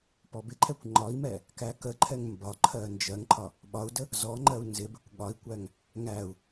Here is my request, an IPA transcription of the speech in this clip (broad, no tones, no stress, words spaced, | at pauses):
pɔbɪǃʰɛkʷ ŋ͡ǃɒi̯mɛ | kækəǃʰɛŋ mbɒǃʰɜ nd͡ʒɜŋǃʰɒ | ɓɒu̯də | zɔŋ͡ǃɜu̯ nzɪbɪkʷ ɠɒi̯kʷæŋ | ŋæu̯